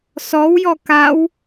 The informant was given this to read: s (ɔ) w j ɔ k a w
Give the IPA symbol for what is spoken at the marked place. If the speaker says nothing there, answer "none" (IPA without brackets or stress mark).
ɔ